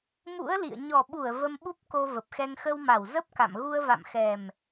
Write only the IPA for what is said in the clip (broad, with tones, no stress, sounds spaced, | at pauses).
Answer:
m ṵ˧˥ ə̯ l ḭ˧˨ ə̯ ɲ ɔ˨˩ ɓ u˧˩ ə̯ v ə˧ m ɓ u˦˥ p̚ k o˧ v ə˨˩ p̚ x ɛ˧ ŋ x ə˧ w m a˧˩ w z ə˦˥ p̚ k a̰˧˨ m ɣ u˧ ə̯ v a̰˧˨ m x ɛ˨˩ m